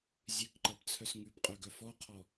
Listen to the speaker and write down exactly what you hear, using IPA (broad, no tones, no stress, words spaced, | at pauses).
zʲʉkǃʌbt͡sʰœs ŋʉbqʼœɡœ fɔqʰɔ